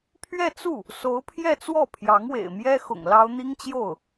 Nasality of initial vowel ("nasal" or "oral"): oral